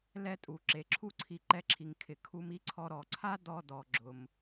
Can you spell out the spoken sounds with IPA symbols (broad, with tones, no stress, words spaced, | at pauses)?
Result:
lɛ˧tʼu˩ ǁe˩ǁʰu˥ǀʰi˧ ǃɛ˧ǁʰi˩ŋ kʰɪ˩ kʰu˧mi˥ǀʰɔ˧ ɾɔ˩ǀʰa˥ dɔ˧dɔ˩ ɡ͡ǁʊ˩m